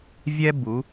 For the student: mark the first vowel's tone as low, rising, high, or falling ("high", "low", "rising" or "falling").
high